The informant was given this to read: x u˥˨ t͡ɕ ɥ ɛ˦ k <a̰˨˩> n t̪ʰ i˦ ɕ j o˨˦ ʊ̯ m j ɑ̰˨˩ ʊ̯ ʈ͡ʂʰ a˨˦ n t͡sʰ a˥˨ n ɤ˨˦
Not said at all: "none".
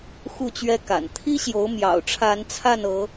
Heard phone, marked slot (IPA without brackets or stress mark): a̰˨˩